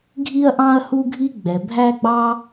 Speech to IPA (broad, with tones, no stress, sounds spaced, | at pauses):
ɡʱ i˦ ɐ̯ ʔ ɑ̃˦ ɐ̯ h u˦ ɡʱ i˦ ɡ͡b ɛ˨ bʱ æ˦ ɡ͡b ɑ˦